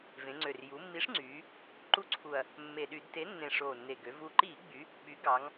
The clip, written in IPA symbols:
vẽ˩˧ŋ͡ǀø˨˩r ju˩˧mːi˨˥ʂŋ͡ǀyː˩˧ | ǃu˦ǀʰu˨˩ɐ̯ | mːe˨˩ɗy˧˩˧dte˨˥nːẽ˨˩ ʂoː˨˩nːe˨˩ɡø˩˧ vu˨˩ǃiː˧˩˧ɡ͡by˩˧ | ɓy˨˥ɡɑ˩˧ŋ

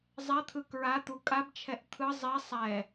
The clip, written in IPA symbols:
zˤɛt̪ʰɯ kɹa t̪ukʼabt͡ʃʰɛʔ t̪ʰɯ zˤi sˤɛ

